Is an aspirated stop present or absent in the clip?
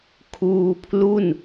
present